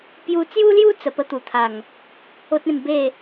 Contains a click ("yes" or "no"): no